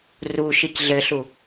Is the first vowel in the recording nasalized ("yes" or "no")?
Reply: no